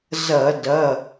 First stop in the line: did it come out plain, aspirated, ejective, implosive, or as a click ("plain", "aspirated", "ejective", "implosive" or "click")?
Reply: plain